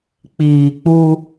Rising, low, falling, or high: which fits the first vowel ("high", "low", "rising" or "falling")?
low